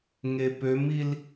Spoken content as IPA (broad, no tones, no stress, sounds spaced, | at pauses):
ŋ e p ø m i l